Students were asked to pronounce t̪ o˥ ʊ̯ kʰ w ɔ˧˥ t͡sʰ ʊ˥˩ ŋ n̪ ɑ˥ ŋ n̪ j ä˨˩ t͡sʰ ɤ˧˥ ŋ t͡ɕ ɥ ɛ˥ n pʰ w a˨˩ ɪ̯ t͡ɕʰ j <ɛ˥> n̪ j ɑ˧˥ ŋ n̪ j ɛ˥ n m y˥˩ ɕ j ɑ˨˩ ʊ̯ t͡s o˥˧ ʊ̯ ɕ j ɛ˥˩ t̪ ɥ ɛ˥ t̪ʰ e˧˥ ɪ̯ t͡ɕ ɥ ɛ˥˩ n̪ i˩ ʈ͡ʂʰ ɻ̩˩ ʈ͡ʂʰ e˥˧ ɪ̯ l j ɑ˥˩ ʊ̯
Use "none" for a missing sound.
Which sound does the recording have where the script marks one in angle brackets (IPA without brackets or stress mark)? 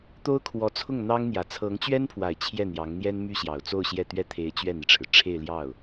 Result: ɛ˥˩